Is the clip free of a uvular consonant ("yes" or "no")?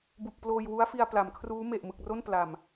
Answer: yes